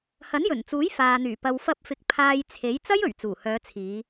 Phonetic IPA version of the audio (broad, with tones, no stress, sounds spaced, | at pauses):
h ɐ˨˥ n j ɵ˨˩ n t͡s uː˨˥ j f aː˨ n̪ yː˨˩ p ɐ˨ w f ɐ˧ p̚ f ɪ˨ k̚ pʰ aː˧ j t͡sʰ e˨˥ j t͡s ɐ˥ j ɵ˨˩ ɥ t͡s uː˨˩ h œː˨˧ t͡sʰ iː˨˧